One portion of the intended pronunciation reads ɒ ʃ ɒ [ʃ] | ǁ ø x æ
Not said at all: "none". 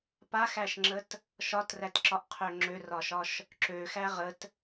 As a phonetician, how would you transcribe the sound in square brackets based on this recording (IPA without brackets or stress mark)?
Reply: ʃ